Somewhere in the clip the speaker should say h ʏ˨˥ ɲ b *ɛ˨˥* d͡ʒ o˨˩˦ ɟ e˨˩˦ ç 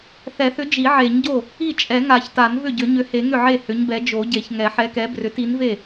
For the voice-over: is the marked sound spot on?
yes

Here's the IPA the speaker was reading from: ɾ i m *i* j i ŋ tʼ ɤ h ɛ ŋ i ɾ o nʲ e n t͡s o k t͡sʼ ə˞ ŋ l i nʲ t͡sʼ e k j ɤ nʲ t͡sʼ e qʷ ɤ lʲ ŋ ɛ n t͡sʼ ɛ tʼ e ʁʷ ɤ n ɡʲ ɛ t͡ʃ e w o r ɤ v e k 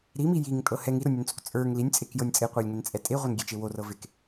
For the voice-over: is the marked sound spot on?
yes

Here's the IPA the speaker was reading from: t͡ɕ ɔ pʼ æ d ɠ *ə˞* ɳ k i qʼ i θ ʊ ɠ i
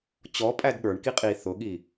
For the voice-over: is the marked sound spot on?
yes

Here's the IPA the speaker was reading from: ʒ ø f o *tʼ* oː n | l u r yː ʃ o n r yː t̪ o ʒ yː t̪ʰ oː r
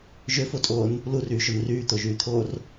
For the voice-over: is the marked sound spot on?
yes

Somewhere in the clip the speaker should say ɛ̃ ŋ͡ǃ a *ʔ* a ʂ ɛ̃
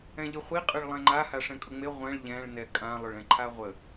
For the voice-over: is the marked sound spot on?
no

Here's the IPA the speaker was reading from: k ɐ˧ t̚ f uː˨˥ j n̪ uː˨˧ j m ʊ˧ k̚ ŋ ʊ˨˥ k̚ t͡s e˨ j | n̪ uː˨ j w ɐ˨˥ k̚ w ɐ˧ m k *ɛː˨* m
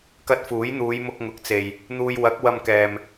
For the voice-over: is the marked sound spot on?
yes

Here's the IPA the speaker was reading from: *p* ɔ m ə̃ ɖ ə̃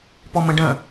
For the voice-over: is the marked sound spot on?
yes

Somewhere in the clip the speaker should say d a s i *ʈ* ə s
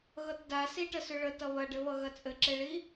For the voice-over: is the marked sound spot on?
yes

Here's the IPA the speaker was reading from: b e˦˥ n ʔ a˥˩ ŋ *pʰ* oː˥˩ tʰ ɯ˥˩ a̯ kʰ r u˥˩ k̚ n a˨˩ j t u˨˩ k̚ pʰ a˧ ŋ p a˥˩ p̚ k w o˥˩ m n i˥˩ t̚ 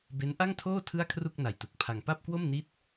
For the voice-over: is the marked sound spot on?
no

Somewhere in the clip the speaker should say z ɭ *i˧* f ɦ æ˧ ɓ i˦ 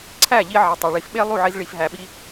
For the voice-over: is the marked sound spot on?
yes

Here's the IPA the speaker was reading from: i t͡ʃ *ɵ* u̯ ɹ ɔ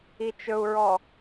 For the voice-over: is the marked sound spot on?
yes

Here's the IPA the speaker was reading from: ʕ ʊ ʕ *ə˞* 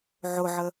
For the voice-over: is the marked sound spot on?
no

